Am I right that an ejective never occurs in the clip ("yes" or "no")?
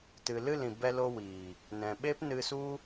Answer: yes